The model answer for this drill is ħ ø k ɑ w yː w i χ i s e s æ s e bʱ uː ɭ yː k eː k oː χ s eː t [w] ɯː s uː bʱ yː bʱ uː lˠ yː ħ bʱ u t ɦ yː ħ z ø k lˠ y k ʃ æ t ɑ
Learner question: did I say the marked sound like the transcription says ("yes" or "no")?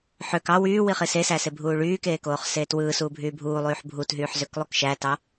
yes